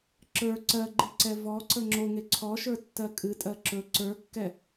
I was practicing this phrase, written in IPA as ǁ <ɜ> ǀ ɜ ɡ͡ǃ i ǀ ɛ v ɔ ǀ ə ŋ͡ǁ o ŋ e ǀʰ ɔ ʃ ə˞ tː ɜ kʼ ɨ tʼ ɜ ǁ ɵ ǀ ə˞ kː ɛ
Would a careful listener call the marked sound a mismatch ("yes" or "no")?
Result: yes